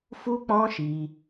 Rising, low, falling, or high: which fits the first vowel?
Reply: high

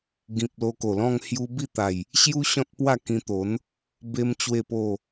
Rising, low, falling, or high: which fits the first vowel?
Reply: low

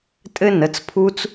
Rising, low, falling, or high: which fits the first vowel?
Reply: high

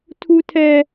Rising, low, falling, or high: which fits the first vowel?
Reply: high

